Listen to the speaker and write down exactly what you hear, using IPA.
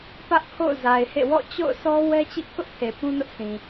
p ä˦ ʔ kʰ o̰˦˨ ʊ̯ z a˨ ɪ̯ h ḛ˦˨ w ɔ̰˦˨ t͡ɕ o̰˦˨ ʊ̯ s ɔ˦ w ɛ˦ t͡ɕ ḭ˦˨ k ʊ˦ ʔ pʰ e˨ p ũ˦ n ʊ˦ ʔ s ĩ˨

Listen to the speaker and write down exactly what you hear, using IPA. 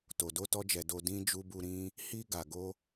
t o˨ d o˧ t ɔ˧ d͡ʒ ɛ˨ d o˨ d ĩ˧ d͡ʒ u˧ b u˧ ɾ ĩ˧ | h i˧ ɡ a˨ ɡ o˧

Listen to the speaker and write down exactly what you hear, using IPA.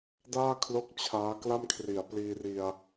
d aː˥˩ kʰ l o˦˥ k̚ t͡ɕʰ aː˦˥ k l a˥˩ m kʰ r i˩˦ a̯ p l iː˧ r i˧ a̯

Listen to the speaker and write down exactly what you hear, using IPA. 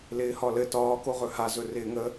l ɪː h ɒ l ɘ t ɒː k o ʁ ɵ h a z ɵ r ɪː ŋ ə

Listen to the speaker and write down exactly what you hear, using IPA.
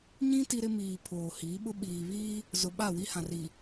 ɲ ĩ˦ t i˦ ɾ ɪ˦ m iː˨ pʰ oː˨ h iː˨˦ ɓ ʊ˦ ɓ iː˨ β iː˦ | z ʊ˨ ɓ a˦˨ w i˦ h ã˨ r i˨

